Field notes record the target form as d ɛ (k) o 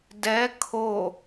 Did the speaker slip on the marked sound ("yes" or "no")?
yes